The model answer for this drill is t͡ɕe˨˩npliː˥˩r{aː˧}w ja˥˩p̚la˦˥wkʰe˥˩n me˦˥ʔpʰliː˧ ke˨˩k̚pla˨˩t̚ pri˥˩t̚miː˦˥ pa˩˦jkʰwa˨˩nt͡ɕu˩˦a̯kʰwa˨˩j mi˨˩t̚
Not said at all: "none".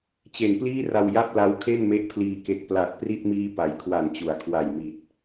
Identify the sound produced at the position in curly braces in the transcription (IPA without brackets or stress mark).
a˧